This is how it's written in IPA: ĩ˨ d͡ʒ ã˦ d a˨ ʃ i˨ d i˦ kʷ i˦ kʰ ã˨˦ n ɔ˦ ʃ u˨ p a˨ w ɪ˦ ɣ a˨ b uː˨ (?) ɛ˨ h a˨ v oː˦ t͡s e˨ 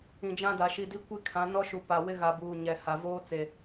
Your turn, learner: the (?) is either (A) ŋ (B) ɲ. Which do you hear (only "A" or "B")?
B